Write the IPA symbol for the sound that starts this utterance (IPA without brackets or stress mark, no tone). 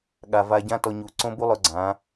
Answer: ɠ